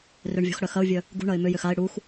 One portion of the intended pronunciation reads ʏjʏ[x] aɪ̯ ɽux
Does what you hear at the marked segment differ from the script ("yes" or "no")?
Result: no